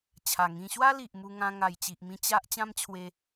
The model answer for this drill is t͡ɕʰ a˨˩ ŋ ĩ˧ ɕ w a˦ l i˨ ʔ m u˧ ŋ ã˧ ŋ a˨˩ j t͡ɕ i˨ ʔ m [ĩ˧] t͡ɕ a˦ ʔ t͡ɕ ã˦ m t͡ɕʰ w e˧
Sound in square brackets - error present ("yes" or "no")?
no